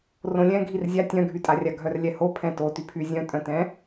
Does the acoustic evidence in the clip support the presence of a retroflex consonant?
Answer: no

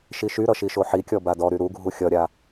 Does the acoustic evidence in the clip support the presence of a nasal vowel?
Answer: no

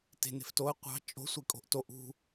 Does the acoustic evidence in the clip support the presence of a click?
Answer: no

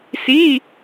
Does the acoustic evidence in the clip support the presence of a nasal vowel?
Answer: no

